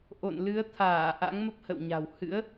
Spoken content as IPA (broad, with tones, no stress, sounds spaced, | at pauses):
ʔ o̰˧˨ n l ɨ˨˦ ə̯ t̪ʰ aː˧˩ ʔ a̰˧˥ ŋ m ə˦˥ p̚ h ə̰˧˨ w ɲ a̤˨˩ w h ɨ̰˧˥ ə̯